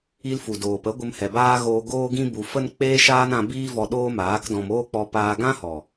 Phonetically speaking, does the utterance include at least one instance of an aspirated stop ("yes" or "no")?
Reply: no